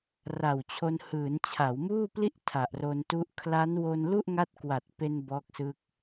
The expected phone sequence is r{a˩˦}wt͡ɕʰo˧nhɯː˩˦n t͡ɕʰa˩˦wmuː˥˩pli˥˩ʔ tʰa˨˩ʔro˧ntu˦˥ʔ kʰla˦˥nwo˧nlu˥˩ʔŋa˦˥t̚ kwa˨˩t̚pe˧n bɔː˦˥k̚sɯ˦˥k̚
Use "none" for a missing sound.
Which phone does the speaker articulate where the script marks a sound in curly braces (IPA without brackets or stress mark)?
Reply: a˨˩